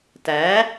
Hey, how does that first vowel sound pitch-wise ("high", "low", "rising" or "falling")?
rising